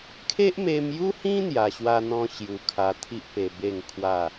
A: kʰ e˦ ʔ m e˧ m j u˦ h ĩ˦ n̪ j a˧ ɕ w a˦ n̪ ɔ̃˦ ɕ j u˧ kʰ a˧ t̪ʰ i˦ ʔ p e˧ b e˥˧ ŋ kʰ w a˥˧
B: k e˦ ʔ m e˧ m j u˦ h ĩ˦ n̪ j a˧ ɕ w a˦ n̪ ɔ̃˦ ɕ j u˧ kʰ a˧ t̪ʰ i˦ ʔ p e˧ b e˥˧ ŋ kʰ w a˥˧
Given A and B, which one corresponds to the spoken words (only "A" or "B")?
A